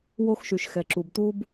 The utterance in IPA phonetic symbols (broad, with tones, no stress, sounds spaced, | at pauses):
w o˥ x ʃ y˩ ʃ x ɛ˩ ǁ u˩ b t̪ u˥ b